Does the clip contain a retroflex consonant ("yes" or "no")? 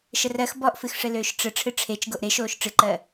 yes